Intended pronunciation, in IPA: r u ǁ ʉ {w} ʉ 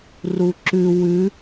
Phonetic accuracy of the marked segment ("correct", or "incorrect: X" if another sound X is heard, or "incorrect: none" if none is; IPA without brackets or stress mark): correct